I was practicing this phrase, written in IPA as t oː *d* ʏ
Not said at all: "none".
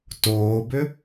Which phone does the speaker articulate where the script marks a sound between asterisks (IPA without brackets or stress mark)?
b